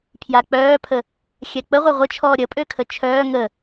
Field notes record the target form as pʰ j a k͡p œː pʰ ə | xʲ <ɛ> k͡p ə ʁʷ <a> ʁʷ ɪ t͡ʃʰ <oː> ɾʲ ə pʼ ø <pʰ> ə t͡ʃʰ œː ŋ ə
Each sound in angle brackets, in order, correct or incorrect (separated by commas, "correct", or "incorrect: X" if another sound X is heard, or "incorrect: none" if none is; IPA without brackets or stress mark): correct, correct, incorrect: ɔː, incorrect: kʰ